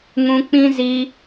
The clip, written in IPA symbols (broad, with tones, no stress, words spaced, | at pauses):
ŋũ˧k͡pĩ˦ zi˧